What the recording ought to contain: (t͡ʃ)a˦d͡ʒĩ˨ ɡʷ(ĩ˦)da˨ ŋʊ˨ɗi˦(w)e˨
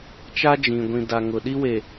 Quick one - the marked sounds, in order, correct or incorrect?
correct, incorrect, correct

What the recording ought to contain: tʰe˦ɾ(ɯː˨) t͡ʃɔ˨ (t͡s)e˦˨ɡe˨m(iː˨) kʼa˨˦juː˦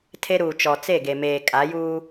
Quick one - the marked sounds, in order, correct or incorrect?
incorrect, correct, incorrect

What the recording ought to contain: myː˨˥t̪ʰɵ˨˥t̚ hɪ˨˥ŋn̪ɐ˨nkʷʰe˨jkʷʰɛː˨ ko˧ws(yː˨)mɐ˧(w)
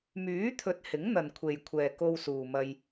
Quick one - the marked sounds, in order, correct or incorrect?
incorrect, incorrect

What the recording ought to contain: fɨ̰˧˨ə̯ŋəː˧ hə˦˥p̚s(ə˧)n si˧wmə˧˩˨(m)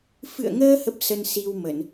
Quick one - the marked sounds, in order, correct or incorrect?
correct, incorrect

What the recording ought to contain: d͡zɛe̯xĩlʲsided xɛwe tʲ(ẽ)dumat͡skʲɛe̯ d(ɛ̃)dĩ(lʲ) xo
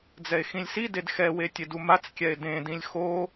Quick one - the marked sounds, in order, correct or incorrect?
incorrect, incorrect, correct

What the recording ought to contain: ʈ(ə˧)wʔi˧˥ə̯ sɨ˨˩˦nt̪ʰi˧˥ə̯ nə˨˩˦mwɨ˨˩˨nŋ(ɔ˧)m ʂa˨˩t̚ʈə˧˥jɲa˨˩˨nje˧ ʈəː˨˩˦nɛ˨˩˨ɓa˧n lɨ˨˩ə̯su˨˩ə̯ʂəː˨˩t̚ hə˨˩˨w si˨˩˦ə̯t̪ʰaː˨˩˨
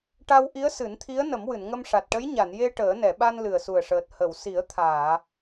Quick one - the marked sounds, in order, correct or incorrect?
incorrect, incorrect

